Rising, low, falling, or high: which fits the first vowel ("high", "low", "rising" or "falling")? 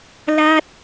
high